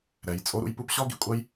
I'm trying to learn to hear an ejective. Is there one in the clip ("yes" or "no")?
yes